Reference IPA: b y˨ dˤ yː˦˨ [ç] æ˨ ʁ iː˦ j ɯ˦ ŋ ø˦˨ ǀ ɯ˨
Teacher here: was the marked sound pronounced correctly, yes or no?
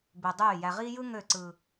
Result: no